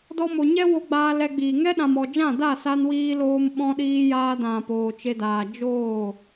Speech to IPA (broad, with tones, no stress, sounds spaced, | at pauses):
d ɔ˧ m o˨ ɲ ɛ˦ w o˧ ɡ͡b aː˧ l ɛ˧ ɡ͡b iː˨ ŋ ɛ˦ ɗ ã˨ m ɔ˨ d͡ʒ ã˦˨ d a˦˨ s a˧ n w iː˧ l oː˧ m ɓ ɔ̃˧ ɗ iː˧ j aː˧ d ã˨ p oː˨ t͡ʃ e˧ d aː˨ d͡ʒ oː˦˨